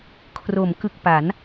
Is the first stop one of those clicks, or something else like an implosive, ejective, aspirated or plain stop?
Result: aspirated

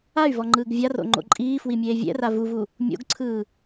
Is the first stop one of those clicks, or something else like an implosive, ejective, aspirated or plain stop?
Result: click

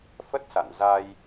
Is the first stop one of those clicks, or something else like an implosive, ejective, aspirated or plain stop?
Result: plain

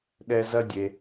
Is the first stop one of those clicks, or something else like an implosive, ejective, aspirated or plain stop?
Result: implosive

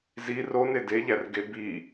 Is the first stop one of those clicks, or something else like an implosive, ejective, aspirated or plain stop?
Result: plain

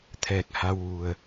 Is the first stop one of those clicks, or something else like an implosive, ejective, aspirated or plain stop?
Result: aspirated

